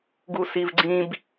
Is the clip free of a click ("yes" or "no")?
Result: no